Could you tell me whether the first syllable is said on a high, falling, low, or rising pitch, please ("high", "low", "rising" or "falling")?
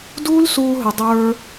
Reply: high